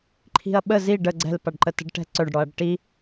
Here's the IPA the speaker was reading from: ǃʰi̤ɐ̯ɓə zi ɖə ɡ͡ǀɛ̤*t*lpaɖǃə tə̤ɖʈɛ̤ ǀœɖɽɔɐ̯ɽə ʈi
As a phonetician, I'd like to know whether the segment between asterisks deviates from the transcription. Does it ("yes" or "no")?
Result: yes